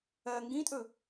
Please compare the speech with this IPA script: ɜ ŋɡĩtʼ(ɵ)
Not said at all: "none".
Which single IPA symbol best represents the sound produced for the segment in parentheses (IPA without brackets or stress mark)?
ɵ